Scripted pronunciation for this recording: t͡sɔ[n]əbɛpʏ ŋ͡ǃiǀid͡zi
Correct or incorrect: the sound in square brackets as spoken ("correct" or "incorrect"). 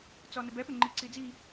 correct